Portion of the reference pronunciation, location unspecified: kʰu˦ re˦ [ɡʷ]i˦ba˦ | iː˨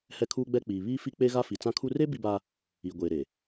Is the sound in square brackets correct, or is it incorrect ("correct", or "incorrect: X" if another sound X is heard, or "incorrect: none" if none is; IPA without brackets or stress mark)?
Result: incorrect: b